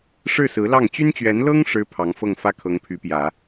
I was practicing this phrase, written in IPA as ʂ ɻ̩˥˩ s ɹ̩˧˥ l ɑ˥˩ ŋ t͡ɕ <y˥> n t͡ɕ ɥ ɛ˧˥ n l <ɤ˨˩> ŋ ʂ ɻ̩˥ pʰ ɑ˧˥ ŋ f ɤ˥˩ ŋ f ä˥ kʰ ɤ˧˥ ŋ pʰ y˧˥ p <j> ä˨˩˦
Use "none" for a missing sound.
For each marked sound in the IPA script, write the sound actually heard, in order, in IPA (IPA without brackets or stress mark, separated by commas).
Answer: y˥, ɤ˥, j